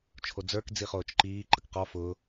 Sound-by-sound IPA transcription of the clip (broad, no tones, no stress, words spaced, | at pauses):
t͡ʃʰod͡zə˞k d͡ziχoːt͡ʃǃiː ǃəkqɔ fʊː